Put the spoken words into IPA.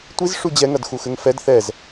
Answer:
tʷ i z ʂ u d͡ʑ ɛ ŋ ɐ d x u x ɘ ŋ f ɛ d θ ɛ z

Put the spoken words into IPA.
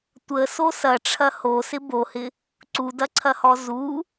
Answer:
tʷ ə s o s ɐ ʈ͡ʂʰ ɐ h o s ɪ b o h ɪ | ǀ u d ɐ ǀʰ ɐ h ɔ z u

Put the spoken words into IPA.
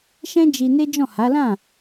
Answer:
ʃ ɛ̃˦ d͡ʒ i˧ n e˦ d͡ʒ ɔ̃˦˨ h a˨˦ l ã˦˨

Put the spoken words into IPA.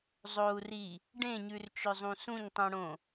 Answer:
zˤ o u̯ r i | ɖ ẽ ɲ ʉ r t͡ʃ ɵ zˤ ũ s ũ ɲ tˤ ũ ɽ õ

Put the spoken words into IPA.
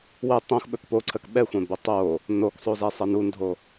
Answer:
w ə tˤ õ x ɓ ɵ k p o ǀʰ ə k ɓ ɛ xʷ ɛ̃ b ə tˤ o | n o k sˤ o z ɛ sˤ ə n u n dʱ o

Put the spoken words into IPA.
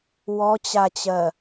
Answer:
w ɔ t͡ɕ a t͡ɕ ɜ

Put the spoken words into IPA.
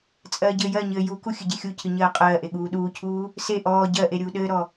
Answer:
t͡sʼ ɜː ɟ ɘː j ɜ ɲ ɘː j u k u xʲ ɨ ɟ e xʲ u cʰ ɨ ɲ ɜː qʼ ɜː ʔ e ɠ uː ɗ uː cʰ uː | s e ʔ ɔː ɟ ɜ ʔ e ɾʲ uː ɗ ɘː ɾ ɔ

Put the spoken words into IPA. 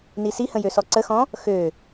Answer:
n i s i h ə̃ j ø s ɔ ǀ ə x ɔ̃ | x ø

